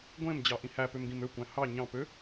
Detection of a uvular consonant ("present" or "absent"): absent